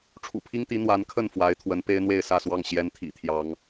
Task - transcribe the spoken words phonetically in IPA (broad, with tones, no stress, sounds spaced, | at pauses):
ʈ͡ʂʰ ṵ˨˩ pʰ i˥ ŋ t̪ i˧˥ n̪ w a˧˥ n kʰ ə˥˩ n f w a˧˥ ɪ̯ t̪ʰ w ə˧˥ n p e˥ ɪ̯ n̪ w e˥˧ ɪ̯ s ä˥˧ s w ɑ˥˩ ŋ ɕ j ɛ˧˥ n t̪ʰ ḭ˨˩ t̪ʰ j ɑ˥ ŋ